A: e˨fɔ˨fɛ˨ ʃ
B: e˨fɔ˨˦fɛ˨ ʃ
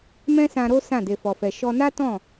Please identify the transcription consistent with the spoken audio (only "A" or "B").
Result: A